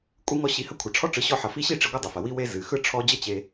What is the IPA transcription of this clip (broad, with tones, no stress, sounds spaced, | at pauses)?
kʷʼ ɨ˦ ŋ ɔ˦ ɕ i˧ h ɐ˦ kʷʰ ʌ˨ ʈ͡ʂʰ ɔ˦ ʈ͡ʂ ɯ˨˦ ɕ ɔ˧ ħ ʌ˨ f i˧ ɕ i˦˨ ʈ͡ʂ i˨˦ ɡʷ ɐ˦ dˤ ɐ˨ f ɐ˨ w i˦ w e˦ z ɨ˨ x ɯ˦ ʈ͡ʂʰ ɔ˦ d͡ʑ ʌ˦ t͡ɕ e˧